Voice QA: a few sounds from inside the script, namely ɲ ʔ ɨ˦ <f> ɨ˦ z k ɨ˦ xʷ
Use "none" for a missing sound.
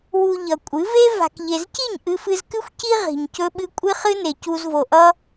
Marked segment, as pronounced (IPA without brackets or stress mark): f